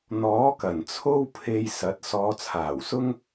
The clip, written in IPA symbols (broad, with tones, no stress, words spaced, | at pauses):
n̪ɔː˨˥kɐ˨˩n t͡sʰo˥wpʰe˧jsɐ˨˥t̚ sɔː˨˧t͡sʰaː˨˩wsʊ˥ŋ